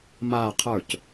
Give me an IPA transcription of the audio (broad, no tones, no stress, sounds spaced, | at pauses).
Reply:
m aː qʰ ə˞ c